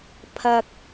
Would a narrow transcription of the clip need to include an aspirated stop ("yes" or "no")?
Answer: yes